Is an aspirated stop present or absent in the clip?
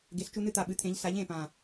present